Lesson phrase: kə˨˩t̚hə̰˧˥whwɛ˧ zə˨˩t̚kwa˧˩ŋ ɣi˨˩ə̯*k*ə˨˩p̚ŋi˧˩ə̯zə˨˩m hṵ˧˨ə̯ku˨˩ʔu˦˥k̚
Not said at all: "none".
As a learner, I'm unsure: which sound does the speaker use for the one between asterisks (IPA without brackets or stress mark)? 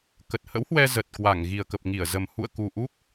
k